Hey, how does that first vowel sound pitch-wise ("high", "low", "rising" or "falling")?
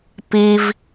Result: low